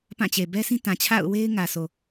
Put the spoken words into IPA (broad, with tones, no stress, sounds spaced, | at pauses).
p ã˦˨ t͡ɕ e˨ b ɛ˦ sʰ ĩ˦ t ã˨ t͡ɕʰ a̰˦˨ ʊ̯ w e˦ ɪ̯ ŋ ä˨ s o˨